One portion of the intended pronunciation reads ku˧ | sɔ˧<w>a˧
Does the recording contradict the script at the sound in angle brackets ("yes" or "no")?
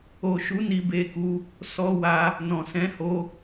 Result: no